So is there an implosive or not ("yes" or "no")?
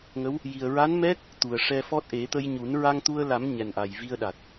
yes